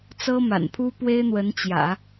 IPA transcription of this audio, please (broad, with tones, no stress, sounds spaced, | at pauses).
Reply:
t͡s ɤ˥ m a̰˨˩ n pʰ u˥ p w e˥ ɪ̯ n̪ w ə˧˥ n t͡ɕ j ä̰˨˩˦